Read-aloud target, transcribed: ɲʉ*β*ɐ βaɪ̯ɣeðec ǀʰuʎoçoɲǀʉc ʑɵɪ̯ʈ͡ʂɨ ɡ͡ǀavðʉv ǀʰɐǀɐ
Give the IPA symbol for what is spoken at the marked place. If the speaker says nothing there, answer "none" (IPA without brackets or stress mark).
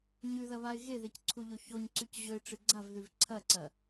ð